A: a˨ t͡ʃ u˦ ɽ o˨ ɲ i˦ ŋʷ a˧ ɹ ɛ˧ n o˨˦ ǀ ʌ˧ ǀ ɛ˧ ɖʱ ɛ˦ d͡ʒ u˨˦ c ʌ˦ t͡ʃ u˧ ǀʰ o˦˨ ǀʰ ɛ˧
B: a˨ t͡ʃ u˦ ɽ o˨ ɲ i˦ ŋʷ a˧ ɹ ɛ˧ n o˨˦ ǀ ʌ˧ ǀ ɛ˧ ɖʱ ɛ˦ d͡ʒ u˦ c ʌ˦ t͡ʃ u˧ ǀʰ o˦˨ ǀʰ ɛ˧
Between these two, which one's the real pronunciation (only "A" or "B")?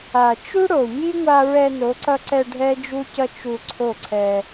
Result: B